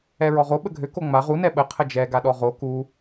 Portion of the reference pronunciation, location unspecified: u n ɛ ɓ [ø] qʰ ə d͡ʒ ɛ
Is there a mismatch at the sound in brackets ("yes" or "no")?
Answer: yes